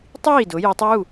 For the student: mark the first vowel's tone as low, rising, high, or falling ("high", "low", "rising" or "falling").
falling